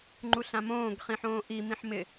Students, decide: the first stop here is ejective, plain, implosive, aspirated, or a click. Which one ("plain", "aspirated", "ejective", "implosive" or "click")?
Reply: click